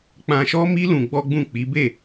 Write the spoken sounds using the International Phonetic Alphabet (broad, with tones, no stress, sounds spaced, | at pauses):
k͡p ã˧ ʃ ɔ˦ m i˦ l ũ˧ ɡ͡b ɔ˦ ɡ͡b ũ˦˨ k͡p i˨˦ b e˦˨